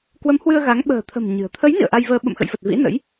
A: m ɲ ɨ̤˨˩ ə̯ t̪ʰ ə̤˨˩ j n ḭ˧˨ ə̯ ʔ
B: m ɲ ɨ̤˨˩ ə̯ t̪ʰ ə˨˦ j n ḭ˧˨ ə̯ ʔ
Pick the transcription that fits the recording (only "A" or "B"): B